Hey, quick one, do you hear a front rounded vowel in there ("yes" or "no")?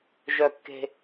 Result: yes